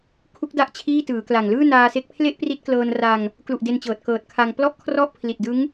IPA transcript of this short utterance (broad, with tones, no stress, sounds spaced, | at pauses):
kʰ u˦˥ k̚ d a˦˥ ʔ t͡ɕʰ iː˥˩ t ɯː˩˦ k l a˨˩ ŋ l ɯː˥˩ n aː˧ s e˦˥ k̚ pʰ l e˥˩ ʔ p r i˦˥ t̚ k l ɤː˧ n r a˧ ŋ | k l u˨˩ ʔ d e˧ n t͡ɕ ɤː˨˩ t̚ k ɤː˨˩ t̚ kʰ a˧ ŋ p l ɔ˥˩ ʔ kʰ r ɔ˥˩ ʔ pʰ l i˨˩ t̚ d ɯ˦˥ ŋ